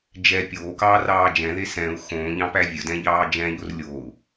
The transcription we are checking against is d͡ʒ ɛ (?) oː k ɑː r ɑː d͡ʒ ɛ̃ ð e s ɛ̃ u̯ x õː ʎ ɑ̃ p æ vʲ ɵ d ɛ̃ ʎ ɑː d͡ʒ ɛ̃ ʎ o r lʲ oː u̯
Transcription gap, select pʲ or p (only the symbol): pʲ